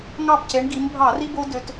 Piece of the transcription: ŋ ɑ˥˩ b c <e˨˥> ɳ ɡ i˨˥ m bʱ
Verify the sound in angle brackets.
correct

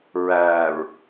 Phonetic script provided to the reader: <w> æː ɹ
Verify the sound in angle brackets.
incorrect: ɹ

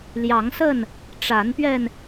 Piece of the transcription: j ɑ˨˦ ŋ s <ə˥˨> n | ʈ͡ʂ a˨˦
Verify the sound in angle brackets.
correct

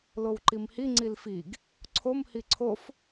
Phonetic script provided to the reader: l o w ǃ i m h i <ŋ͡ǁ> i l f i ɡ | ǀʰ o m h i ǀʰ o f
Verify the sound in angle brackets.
incorrect: ŋ͡ǀ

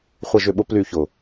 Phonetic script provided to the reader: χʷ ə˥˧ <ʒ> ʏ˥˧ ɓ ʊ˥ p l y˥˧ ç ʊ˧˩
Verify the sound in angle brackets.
correct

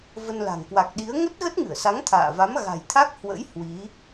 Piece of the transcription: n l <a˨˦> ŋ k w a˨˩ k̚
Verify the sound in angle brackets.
incorrect: a̤˨˩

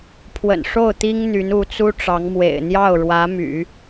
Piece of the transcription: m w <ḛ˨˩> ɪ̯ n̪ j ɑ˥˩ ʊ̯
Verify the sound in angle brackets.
correct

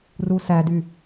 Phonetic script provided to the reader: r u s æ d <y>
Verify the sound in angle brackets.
correct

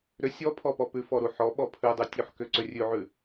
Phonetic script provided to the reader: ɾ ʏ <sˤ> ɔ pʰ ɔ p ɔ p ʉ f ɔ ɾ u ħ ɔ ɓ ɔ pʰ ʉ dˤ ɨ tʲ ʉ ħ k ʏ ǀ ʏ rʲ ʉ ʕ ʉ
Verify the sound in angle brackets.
incorrect: sʲ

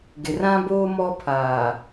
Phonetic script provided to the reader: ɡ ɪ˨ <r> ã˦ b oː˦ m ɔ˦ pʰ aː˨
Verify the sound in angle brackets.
correct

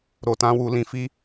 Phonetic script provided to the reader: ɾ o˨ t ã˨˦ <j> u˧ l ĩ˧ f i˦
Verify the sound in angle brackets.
incorrect: w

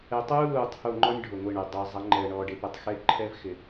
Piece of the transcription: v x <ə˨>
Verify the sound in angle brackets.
incorrect: ɪ˨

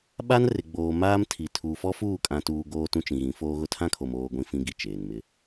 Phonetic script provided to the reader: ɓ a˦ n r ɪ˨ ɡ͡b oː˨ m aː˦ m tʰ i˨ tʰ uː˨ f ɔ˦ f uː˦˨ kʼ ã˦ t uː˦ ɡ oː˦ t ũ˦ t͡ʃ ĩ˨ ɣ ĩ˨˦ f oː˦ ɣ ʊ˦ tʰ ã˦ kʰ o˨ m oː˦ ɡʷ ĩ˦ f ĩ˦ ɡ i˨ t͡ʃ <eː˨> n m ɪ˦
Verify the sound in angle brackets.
correct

